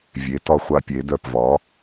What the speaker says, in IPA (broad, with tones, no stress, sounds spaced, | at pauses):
vʲ e˩˥ t ɒ˧ χʷ a˧ pʲ e˩˧ d œ˧˩ p v ɒ˩˥